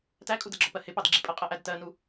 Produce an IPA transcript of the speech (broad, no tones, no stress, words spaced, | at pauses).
tækʼudɜɡ͡ǁɔ pɜhɪpɑd ɡ͡ǁipʼɜqʼɜʔæd tɜnu